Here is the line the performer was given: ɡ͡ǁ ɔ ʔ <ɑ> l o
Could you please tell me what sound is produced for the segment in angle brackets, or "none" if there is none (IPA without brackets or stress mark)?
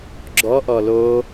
ɔ